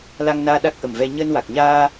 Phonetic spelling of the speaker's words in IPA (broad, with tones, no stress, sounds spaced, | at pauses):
l a˧ ŋ n aː˧ ɗ a˦˥ k̚ ʔ ə˨˩ m v ɛ˧ ɲ əː˧ n w a˨˩ k̚ ɲ aː˧